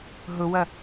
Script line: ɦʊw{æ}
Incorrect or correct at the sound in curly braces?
incorrect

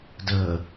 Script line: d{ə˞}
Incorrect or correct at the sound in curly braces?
incorrect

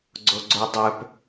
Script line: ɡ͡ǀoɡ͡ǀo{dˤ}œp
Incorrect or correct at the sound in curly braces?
correct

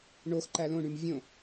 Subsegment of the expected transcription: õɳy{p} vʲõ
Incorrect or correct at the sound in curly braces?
incorrect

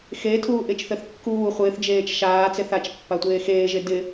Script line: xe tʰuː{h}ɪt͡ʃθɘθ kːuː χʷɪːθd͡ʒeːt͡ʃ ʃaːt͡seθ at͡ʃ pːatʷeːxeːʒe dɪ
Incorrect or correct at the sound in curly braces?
incorrect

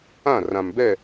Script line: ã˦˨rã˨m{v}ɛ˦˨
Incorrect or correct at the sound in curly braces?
incorrect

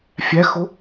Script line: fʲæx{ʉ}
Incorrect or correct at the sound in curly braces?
incorrect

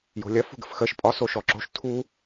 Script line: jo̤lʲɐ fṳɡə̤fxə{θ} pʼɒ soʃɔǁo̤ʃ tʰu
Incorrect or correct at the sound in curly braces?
incorrect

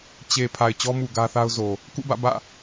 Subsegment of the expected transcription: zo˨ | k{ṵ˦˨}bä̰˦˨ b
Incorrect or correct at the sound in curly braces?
correct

